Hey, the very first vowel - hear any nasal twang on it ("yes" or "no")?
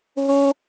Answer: no